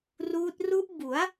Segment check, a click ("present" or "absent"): absent